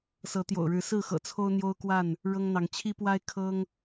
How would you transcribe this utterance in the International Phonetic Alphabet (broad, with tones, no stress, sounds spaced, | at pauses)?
s ɤ˨˦ t̪ j o̰˨˩ ʊ̯ ɻ ɻ̩˨˦ s ɹ̩˥˨ x ɤ̰˨˩ t͡sʰ o˦ ʊ̯ n̪ j o˦ ʊ̯ k w a˥˨ n | ɻ ɤ˦ ŋ n̪ ɑ˨˦ ŋ t͡ɕʰ i˦ p w a˦ ɪ̯ kʰ ɤ˦ ŋ